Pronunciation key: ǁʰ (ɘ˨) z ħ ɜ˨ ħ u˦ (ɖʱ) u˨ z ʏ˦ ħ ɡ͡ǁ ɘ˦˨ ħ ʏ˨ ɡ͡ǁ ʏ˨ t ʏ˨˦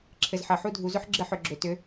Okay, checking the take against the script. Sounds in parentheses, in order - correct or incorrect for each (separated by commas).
correct, incorrect